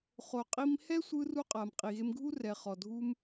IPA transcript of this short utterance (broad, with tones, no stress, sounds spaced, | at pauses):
χ o˨ qʼ i˧ m h ɛ˦ sʷ ɯ˧ r u˧ qʼ a˨ m qʼ i˨ ɣ e˧ m ɡʱ u˦ r ɛ˨ χ ɔ˨ dʱ u˧ m